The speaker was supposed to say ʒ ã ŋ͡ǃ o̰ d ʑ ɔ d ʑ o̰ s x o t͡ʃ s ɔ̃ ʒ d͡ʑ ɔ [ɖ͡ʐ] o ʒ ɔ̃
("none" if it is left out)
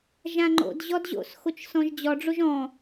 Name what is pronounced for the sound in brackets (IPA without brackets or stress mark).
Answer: ɖ͡ʐ